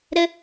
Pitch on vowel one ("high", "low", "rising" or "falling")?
high